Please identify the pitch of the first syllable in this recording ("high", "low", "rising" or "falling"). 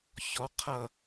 rising